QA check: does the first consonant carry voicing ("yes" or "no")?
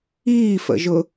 no